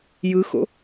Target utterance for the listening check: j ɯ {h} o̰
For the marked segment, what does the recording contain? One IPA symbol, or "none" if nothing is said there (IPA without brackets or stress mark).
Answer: x